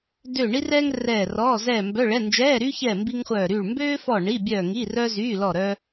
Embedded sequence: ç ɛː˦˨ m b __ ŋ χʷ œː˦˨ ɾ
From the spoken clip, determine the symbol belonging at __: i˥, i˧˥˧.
i˥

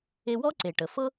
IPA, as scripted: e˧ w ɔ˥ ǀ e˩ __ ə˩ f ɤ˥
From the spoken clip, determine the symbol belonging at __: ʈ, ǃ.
ʈ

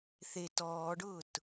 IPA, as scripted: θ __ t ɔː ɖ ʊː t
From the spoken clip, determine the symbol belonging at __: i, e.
e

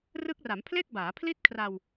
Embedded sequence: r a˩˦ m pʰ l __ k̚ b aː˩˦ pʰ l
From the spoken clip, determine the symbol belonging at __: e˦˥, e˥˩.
e˥˩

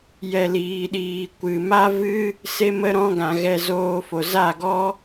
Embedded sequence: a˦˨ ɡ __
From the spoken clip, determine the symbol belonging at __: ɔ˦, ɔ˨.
ɔ˦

